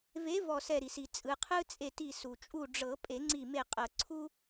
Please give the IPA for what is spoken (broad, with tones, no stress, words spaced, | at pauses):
ve˨˥ vɔ˧˩sɛ˧˩ɾi˩si˩ t͡sʼɯ˩qʰɯ˦ t͡sʼe˧˩ti˧˩ su˩ t͡ʃʼu˧˩ɖ͡ʐɤ˨˩˦ pʼe˨˩˦ŋ͡ǀi˧˩me˧˩ qʼɤ˩ ǀʰu˦